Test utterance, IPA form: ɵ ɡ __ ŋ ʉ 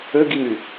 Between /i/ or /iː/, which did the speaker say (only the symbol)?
i